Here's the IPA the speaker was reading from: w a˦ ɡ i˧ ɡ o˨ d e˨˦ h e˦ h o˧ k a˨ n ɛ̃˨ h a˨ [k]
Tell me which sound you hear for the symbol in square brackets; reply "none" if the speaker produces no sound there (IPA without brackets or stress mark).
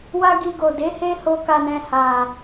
none